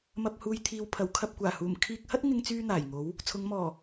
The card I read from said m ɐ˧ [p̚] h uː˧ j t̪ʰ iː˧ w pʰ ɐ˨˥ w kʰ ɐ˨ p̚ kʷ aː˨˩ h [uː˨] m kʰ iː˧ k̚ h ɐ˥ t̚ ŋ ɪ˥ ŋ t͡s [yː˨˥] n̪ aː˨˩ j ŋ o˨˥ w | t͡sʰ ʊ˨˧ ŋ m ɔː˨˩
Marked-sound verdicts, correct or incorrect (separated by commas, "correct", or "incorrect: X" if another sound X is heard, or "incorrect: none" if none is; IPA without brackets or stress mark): correct, incorrect: uː˨˩, incorrect: yː˥